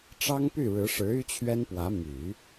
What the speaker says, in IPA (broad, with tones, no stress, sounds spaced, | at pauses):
ʈ͡ʂ ɑ˥ ŋ p y˥˩ ɻ ɻ̩˧˥ ʂ ɻ̩˧˥ y˥ t͡ɕʰ ɥ ɛ˥ n p w ä˧˥ m y˨˩˦